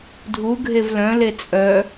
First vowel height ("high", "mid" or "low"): high